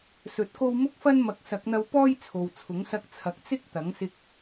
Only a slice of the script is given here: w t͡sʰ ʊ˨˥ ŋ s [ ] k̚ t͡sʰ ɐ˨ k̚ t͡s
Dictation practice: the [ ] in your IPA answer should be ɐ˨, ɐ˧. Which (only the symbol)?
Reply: ɐ˧